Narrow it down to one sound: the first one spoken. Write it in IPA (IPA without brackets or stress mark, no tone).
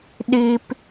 ɗ